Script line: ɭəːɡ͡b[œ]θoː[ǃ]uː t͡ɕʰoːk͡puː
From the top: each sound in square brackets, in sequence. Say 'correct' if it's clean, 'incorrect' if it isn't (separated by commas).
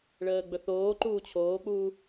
incorrect, correct